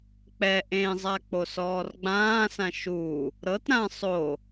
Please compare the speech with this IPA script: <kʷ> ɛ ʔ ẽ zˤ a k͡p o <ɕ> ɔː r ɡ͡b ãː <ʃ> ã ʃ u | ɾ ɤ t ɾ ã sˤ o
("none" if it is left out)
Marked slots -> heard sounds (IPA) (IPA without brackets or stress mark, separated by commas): k͡p, s, s